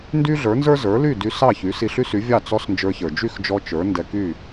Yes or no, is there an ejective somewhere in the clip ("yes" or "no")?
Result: no